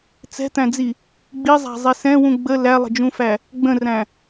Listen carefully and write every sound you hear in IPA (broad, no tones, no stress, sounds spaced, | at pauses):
t͡s ɛ̤ t̪ æ̃ d͡z i | ɡ͡b i zˤ æ̤ zˤ i s ɛ̃ w ũ ɡ͡b ə l æ lˠ ə̤ d͡ʒ ũ f æ | ɡ͡b ə̃ r æ̃